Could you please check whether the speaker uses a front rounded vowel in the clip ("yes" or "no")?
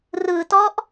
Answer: no